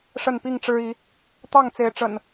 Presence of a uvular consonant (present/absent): absent